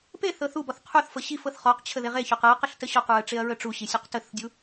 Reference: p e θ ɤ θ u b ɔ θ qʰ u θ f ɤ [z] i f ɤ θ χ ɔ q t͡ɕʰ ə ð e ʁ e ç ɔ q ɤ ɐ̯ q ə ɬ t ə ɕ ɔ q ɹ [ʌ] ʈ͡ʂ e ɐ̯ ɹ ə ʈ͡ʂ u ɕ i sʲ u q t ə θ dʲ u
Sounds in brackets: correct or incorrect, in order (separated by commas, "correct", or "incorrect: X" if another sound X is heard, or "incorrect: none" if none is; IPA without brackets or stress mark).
incorrect: ɕ, incorrect: ə